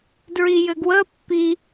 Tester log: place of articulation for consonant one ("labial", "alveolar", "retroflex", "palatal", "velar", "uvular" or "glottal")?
alveolar